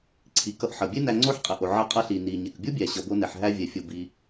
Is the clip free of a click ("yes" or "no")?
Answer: no